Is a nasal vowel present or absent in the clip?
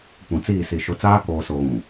present